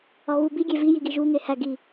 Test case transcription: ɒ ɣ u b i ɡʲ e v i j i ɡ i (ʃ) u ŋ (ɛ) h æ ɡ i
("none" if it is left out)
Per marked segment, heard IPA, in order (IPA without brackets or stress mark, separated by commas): ʒ, e